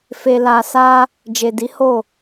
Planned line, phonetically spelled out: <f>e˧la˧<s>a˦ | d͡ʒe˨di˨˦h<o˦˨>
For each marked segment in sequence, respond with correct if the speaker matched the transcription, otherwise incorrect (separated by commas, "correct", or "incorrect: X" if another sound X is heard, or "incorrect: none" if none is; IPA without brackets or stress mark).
correct, correct, correct